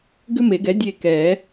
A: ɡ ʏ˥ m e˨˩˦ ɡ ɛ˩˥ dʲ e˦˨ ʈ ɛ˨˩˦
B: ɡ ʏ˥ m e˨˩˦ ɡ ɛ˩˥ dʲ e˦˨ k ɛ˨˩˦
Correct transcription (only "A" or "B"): B